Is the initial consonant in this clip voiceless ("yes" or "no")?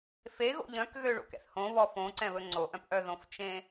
yes